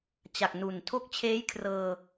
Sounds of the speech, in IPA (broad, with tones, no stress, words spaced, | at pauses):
t͡ɕa˨˩k̚nu˨˩n tʰo˦˥k̚t͡ɕʰeː˦˥jkʰrɤː˧